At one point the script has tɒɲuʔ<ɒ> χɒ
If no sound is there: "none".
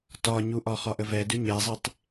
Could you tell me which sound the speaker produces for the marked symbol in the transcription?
ɒ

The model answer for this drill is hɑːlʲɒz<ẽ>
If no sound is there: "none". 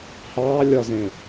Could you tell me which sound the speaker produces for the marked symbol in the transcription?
ẽ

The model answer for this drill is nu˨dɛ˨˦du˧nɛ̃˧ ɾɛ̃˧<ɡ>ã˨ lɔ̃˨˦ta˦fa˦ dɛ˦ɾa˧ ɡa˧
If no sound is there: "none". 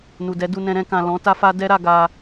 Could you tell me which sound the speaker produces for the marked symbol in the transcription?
k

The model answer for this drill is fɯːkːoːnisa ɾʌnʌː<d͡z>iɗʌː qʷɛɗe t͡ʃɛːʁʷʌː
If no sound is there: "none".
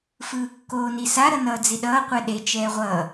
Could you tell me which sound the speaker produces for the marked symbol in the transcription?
d͡z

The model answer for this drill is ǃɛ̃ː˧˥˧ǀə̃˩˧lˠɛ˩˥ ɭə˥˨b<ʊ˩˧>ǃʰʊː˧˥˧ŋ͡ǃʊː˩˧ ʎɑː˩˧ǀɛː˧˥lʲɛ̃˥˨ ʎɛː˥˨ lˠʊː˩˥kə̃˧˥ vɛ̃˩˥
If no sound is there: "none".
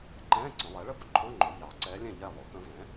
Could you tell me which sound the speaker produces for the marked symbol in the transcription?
ʊ˧˥˧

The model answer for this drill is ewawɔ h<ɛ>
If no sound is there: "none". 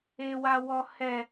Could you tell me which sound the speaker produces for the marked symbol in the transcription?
ɛ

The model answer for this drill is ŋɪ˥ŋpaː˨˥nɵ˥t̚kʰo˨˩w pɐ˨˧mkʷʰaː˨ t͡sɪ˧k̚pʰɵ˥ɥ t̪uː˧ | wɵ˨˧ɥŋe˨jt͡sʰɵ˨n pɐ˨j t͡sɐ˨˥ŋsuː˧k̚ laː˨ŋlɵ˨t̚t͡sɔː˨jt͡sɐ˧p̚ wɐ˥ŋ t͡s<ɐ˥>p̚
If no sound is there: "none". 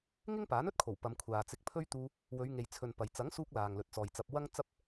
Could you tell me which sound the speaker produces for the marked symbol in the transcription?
ɐ˥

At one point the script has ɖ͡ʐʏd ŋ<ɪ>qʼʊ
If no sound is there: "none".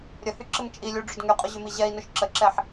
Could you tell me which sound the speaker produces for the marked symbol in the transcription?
y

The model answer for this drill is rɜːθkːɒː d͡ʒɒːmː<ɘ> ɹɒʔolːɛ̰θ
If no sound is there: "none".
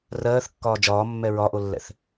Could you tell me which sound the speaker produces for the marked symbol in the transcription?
ɛ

